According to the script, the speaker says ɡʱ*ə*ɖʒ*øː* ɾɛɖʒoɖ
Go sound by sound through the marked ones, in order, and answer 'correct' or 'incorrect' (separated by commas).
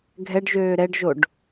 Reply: incorrect, correct